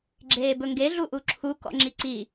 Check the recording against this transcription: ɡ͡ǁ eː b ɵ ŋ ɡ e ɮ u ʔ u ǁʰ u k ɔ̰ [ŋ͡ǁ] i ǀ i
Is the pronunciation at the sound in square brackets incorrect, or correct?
correct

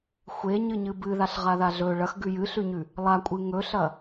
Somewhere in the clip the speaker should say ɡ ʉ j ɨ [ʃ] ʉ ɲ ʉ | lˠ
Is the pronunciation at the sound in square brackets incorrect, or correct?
incorrect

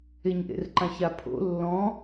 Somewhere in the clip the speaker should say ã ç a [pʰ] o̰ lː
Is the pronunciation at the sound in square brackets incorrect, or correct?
correct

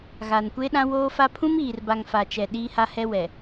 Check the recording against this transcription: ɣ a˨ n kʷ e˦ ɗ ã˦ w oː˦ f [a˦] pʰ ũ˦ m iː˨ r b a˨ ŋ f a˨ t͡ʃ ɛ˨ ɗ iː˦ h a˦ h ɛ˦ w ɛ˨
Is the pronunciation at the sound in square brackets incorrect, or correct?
correct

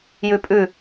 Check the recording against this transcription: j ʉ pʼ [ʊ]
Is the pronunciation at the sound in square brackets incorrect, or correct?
incorrect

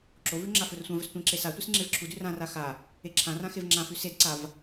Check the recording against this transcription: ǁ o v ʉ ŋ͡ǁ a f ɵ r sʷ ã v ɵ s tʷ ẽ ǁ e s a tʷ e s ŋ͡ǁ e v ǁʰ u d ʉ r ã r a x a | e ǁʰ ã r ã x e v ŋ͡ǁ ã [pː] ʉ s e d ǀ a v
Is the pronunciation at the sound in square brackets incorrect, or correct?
incorrect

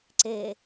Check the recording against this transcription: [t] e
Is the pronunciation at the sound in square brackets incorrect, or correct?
incorrect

